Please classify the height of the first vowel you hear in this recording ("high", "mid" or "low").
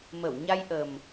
mid